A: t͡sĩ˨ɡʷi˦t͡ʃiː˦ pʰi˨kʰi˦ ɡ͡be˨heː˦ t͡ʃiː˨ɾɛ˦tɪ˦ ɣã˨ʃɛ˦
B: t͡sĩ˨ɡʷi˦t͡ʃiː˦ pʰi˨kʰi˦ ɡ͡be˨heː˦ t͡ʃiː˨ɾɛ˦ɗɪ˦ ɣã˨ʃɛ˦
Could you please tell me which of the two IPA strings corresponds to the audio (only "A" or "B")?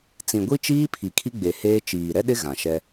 B